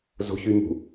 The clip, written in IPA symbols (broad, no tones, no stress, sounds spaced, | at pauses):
z o̤ ç y m ṳ